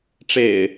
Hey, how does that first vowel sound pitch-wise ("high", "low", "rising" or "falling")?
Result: low